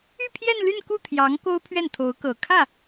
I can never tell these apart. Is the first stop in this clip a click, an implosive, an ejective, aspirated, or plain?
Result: aspirated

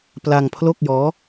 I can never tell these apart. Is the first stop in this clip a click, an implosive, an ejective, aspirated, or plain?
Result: plain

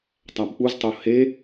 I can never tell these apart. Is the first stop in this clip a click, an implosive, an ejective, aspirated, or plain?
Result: plain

